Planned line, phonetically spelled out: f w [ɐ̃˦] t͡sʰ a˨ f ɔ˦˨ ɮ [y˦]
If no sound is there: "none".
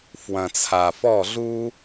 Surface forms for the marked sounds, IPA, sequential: ɐ̃˨, u˦

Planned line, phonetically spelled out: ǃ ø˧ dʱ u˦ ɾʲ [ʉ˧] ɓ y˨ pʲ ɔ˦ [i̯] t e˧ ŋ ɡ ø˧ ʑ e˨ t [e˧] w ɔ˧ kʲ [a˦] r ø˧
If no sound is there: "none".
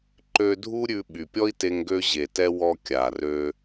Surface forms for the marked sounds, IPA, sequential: ʉ˧, i̯, ɛ˧, a˨

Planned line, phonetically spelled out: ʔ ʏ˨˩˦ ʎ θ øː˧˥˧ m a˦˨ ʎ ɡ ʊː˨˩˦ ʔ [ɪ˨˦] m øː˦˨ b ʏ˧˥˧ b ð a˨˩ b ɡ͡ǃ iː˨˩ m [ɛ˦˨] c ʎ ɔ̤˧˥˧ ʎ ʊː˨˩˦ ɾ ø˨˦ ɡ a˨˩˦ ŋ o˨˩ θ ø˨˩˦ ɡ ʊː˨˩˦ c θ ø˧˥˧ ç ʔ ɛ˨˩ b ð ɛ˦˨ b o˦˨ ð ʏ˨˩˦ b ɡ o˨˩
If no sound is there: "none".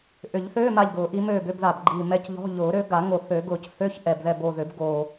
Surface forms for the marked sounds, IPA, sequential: i˨˦, ɛ˧˥˧

